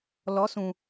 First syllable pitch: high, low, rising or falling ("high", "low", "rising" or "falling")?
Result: rising